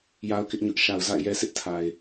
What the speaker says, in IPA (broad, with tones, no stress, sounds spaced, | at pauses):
j a˦ ʊ̯ k ɪ˦ ʔ ɲ ʊ˦ ʔ ʃ a˨ ʊ̯ z a̰˦˨ ɪ̯ j ɛ˦ sʰ ɪ˦ ʔ tʰ a˨ ɪ̯